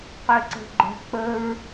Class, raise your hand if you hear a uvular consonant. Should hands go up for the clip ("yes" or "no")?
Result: yes